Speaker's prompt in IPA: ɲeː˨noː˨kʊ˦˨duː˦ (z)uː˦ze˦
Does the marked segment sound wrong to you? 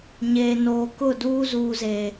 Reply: no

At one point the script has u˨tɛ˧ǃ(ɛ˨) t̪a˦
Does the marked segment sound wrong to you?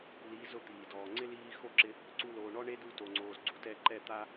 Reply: yes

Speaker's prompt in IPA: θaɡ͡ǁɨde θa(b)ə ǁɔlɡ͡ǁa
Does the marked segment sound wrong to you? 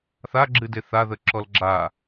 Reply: yes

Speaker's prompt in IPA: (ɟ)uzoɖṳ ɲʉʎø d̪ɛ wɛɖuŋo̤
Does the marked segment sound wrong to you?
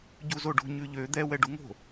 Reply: no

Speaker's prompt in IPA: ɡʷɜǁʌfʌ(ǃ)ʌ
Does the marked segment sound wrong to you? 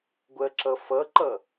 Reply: no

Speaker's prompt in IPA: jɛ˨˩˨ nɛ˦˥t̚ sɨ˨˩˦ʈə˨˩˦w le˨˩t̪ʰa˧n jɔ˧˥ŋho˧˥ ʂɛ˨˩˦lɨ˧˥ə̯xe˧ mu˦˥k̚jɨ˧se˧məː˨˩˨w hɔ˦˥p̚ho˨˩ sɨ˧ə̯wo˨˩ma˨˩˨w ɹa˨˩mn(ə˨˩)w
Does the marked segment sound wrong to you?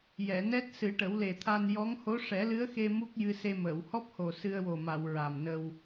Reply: yes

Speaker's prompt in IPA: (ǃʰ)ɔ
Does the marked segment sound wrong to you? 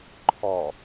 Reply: no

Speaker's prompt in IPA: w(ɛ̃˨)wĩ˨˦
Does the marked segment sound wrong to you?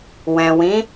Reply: no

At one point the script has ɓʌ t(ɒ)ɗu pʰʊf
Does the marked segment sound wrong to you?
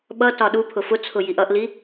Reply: no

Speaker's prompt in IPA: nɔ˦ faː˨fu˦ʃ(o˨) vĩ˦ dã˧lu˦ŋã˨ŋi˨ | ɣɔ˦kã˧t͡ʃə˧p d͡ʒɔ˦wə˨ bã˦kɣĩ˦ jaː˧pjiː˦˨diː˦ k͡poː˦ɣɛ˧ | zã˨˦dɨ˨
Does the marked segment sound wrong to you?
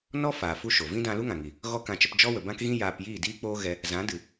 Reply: no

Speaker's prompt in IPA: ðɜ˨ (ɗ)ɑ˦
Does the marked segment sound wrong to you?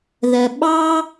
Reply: yes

